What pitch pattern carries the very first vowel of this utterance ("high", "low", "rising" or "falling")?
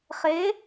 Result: rising